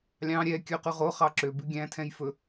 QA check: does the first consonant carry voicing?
yes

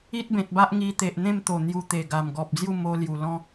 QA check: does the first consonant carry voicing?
no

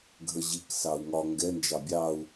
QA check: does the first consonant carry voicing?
yes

